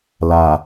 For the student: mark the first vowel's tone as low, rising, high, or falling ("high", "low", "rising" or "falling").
low